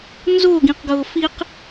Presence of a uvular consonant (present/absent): present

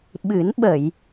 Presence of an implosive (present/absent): present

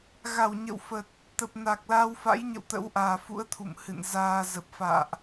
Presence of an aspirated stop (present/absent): present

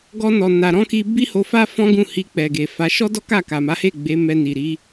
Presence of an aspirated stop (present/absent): absent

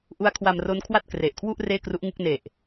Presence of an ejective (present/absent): absent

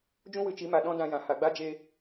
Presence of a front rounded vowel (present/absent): absent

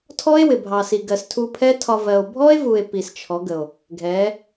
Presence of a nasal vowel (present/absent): absent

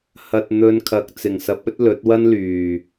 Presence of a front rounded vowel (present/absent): present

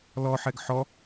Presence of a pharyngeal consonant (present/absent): present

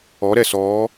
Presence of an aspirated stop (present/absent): absent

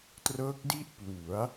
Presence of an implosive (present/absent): absent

